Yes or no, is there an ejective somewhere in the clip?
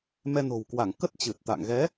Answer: no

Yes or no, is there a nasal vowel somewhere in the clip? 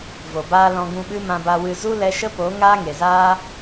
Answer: yes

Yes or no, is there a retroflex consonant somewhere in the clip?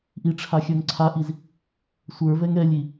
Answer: yes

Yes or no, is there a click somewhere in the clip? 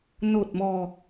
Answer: no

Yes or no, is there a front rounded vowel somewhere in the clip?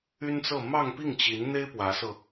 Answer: yes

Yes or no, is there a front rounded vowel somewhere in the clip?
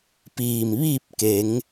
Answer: no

